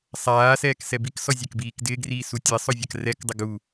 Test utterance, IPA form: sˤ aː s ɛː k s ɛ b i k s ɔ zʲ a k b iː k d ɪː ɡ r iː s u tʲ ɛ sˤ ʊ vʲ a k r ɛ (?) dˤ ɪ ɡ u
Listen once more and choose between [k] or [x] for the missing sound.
k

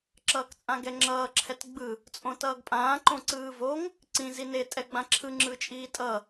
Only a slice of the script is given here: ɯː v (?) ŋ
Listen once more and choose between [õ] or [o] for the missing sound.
o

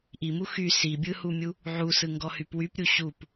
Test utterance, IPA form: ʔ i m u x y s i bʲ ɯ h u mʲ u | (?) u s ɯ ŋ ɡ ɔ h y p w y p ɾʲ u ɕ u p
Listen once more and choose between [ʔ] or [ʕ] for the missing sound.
ʕ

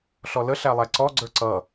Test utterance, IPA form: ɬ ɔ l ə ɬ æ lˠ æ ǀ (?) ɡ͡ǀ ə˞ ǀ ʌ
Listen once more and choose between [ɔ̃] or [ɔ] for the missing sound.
ɔ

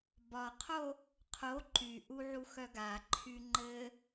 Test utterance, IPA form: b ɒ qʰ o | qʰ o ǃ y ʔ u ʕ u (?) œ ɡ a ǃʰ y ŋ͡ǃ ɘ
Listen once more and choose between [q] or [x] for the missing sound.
x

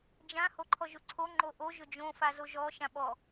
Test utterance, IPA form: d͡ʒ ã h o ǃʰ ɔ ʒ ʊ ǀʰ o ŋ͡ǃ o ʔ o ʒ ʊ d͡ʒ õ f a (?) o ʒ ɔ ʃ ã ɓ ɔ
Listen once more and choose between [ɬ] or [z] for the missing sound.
z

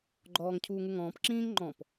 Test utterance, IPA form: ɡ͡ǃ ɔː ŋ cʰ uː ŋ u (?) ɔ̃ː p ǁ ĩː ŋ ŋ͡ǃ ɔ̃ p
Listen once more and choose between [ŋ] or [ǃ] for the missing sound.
ŋ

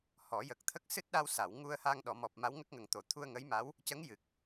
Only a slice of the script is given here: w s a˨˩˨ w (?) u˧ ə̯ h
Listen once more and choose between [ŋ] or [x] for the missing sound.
ŋ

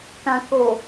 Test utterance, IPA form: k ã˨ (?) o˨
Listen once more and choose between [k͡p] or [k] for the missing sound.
k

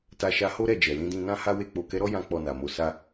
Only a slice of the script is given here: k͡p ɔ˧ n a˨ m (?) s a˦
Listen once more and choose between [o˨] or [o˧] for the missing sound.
o˧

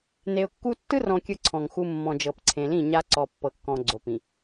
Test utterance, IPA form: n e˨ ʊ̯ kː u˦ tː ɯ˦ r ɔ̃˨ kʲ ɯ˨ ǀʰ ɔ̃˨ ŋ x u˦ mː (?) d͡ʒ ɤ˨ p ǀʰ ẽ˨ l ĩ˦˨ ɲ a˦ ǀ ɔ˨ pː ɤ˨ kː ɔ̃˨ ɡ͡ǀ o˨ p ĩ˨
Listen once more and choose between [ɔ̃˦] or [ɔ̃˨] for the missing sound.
ɔ̃˨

